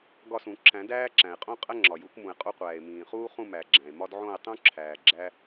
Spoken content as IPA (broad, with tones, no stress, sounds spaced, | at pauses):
ɡ ɒ˦˨ s ũ˨˩˦ ǁ æ̃˨˩˦ d æː˦ ǁ æ̃˩ e̯ qʼ õ˦ qʼ æ˦ ŋ͡ǁ ɒ˩ j u˨˩˦ k m ũ˩ e̯ qʼ o˦ qʷ æː˩ e̯ m ĩː˩ χ uː˦ χ ũ˦˨ m æ˩ ɡ͡ǁ æ̃˩ e̯ m ɒ˦ d ʕ õ˦˨ e̯ tˤ ũ˦ ǁʰ æː˩ ɡ͡ǁ æ˦